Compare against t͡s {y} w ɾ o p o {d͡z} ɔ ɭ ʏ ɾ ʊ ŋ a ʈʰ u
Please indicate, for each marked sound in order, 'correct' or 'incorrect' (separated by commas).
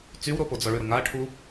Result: correct, correct